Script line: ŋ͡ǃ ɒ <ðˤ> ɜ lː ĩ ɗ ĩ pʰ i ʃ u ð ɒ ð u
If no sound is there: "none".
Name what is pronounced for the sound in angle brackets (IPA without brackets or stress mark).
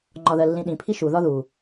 ð